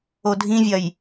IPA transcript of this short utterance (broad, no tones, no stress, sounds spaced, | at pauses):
o dʱ ĩ vʲ ɐ j